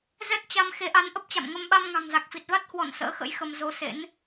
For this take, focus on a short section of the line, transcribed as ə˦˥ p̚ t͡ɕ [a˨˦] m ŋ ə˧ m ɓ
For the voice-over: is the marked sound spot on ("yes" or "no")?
no